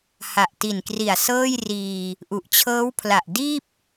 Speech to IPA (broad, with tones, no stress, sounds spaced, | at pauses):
h a˨˩ ʔ t i˨˩ n k r i˨˩ a̯ s ɤː˥˩ j r iː˧ | ʔ u˨˩ ʔ t͡ɕʰ ɤː˦˥ w pʰ l a˨˩ ʔ d iː˥˩ p̚